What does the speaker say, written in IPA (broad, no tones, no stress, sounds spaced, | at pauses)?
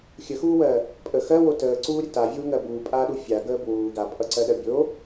xʲ ə x uː w ɜ | pʼ ə x ɜ w o t əː ǀ uː ɾʲ ə t a vʲ uː ŋ ɜ b uː pʼ aː ɗ u fʲ a ɡ əː b w uː ɡ a pʼ ʌ ǀ ɜ ɗ ɜ bʲ o